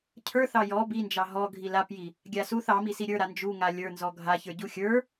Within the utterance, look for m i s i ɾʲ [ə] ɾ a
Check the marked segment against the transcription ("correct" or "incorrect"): incorrect